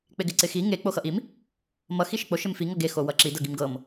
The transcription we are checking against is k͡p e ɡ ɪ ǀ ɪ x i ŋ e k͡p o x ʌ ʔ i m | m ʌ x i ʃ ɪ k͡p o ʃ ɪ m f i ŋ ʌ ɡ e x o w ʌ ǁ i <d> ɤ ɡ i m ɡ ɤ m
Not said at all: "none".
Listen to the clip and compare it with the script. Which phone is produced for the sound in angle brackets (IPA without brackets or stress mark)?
d